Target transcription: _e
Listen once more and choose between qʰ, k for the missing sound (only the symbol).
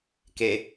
k